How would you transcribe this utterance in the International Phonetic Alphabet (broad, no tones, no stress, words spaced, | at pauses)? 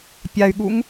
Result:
pʲay̯ɠuŋ